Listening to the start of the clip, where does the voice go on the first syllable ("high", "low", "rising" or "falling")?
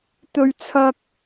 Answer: high